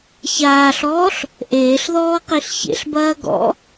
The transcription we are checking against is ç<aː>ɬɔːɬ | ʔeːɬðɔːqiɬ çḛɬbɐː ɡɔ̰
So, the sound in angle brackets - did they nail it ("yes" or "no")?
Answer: yes